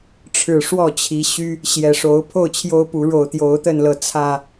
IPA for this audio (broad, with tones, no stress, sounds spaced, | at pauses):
ʈ͡ʂʰ ɻ̩˨˩ ʂ w ɔ˥˨ t͡ɕʰ i˨˦ ɕ y˦ | ɕ j ɛ˨˩ ʂ o˨˦ ʊ̯ pʰ o˥˨ ʊ̯ t͡ɕʰ j o˦ ʊ̯ p u˨˦ ɻ o˨˩ ʊ̯ t̪ j o˨˦ ʊ̯ t̪ ə˥˨ n l ɤ˨˦ t͡sʰ ä˥˨